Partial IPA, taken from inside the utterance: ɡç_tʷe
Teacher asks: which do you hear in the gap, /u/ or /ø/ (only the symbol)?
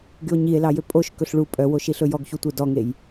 u